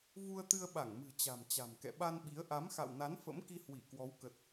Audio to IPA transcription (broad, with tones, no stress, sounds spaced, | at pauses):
v u˧ ə̯ t̪ ɨ˧ ə̯ ɓ a˧˩ ŋ m ɨ̤˨˩ t͡ɕ a̤˨˩ m t͡ɕ a̤˨˩ m k ɛ̰˧˨ ɓ a˧ n ɓ i˨˦ ə̯ ʔ a˨˦ m x a̰˧˨ w n a˨˦ n f ə̰˧˥ m k i˧ h w i˧˩ k w ɔ˨˦ w k ə˨˩ t̚